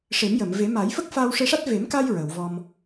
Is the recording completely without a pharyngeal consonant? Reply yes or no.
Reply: yes